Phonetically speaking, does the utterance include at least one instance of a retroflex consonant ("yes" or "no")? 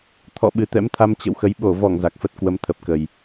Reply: no